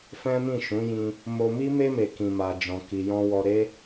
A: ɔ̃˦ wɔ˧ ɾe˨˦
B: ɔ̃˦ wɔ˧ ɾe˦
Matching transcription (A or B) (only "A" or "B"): B